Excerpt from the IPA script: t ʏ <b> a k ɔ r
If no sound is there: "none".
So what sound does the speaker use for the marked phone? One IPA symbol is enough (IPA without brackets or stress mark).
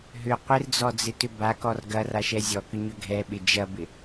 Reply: b